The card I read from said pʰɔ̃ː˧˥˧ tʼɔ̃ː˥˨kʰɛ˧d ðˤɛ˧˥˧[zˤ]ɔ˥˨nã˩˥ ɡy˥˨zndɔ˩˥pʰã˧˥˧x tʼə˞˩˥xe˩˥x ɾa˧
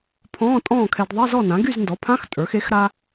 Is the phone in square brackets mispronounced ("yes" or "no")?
yes